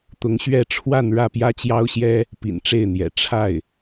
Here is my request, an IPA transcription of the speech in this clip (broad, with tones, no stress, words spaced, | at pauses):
t̪ʊ˧˥ŋɕɥɛ˥˧ ʈ͡ʂʰwa˥˧n ɻä˥˩pjä˥t͡ɕjɑ˥ʊ̯ɕjɛ˥ | pḭ˨˩nʈ͡ʂe˥˩ɪ̯n̪jɛ̰˨˩ ʈ͡ʂʰa˥˩ɪ̯